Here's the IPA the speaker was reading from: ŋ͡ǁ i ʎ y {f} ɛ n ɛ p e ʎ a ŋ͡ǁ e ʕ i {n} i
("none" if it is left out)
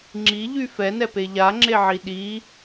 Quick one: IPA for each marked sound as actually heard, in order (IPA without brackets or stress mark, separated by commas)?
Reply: f, ɗ